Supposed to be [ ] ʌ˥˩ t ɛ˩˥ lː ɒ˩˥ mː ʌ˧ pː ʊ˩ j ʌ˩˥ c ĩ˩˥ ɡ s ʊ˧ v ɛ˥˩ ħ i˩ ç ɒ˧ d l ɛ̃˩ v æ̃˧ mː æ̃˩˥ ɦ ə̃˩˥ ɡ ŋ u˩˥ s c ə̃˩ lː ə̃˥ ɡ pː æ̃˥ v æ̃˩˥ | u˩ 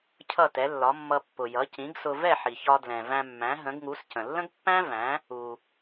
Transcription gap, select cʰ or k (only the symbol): cʰ